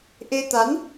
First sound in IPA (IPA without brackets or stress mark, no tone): ʔ